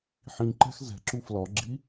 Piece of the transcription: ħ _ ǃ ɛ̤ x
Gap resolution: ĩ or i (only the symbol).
ĩ